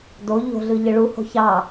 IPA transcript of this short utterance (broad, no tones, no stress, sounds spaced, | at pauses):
d o ʎ o̤ ɮ ɯ ʎ ɯ ɭ u h o̤ ç ɑ